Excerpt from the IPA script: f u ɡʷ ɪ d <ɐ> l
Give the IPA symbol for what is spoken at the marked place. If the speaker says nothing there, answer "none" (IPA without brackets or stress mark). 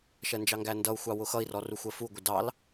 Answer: ɑ